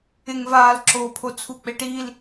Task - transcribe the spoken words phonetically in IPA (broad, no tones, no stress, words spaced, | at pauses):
ɪŋvaːlǁoːpʰo t͡sʰuk͡peʈil